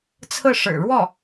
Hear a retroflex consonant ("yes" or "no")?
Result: yes